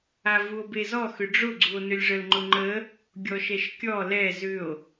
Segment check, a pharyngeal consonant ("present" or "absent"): absent